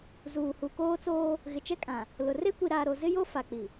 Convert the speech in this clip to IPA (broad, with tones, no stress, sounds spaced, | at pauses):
z uː˨ h u˨ k oː˦ t͡s oː˦ | ɣ ɪ˨ t͡ʃ ɛ˦ kʼ ã˨ | l ʊ˨ r e˦ kʷ i˨ ɾ aː˨ ɾ o˨ z ɪ˦ j o˦ f a˨ k͡p i˨